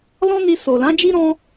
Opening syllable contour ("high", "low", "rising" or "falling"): high